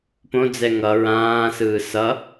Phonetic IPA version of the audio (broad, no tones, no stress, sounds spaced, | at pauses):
p õ d͡z ɛ ŋ ʌ ɹ ãː s ɯː s ʌ